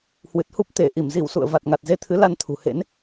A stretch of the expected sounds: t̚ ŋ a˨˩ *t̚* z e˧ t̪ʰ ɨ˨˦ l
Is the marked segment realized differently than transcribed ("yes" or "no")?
no